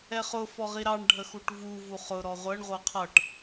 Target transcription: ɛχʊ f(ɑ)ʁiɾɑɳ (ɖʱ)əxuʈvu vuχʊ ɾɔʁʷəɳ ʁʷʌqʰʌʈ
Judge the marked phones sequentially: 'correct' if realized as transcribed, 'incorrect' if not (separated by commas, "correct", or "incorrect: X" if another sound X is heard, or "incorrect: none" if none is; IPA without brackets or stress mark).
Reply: incorrect: ɔ, correct